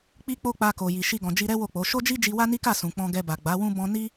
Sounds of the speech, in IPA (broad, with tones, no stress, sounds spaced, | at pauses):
k͡p i˦ k͡p o˦ k͡p a˧ k o˨ j i˨ ʃ i˧ ɡ ɔ̃˨ d͡ʒ i˧ ɾ ɛ˦ w o˦˨ k͡p o˨˦ ʃ o˦ d͡ʒ i˦ d͡ʒ i˧ w a˦ n i˦ k a˦˨ s ũ˨ k͡p ɔ̃˧ ɡ ɛ˧ b a˨ ɡ͡b a˨˦ w ũ˦ b ɔ̃˦ n i˦